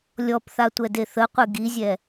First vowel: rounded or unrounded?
rounded